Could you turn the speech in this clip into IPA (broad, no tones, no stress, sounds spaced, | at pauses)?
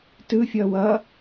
t ɯ fʲ ʌː w ʌ